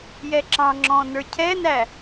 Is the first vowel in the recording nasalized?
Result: no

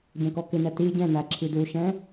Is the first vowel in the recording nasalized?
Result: yes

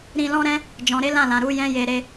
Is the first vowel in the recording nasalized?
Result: yes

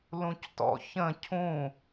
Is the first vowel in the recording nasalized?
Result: yes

